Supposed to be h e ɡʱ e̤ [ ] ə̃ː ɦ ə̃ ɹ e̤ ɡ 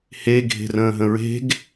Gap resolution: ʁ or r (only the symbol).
r